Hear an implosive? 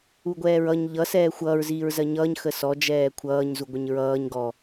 no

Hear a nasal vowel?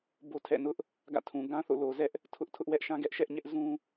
yes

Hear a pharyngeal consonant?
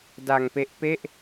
no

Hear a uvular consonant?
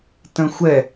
no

